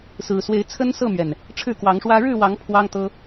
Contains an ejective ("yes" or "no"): no